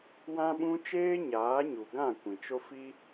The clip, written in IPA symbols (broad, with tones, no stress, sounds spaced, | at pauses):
w ã˦ ɓ ũ˦ t͡ʃ eː˦ ɲ aː˨˦ ɲ u˨ ɡ ã˦˨ kʷ ĩ˨ t͡ʃ o˦ f i˦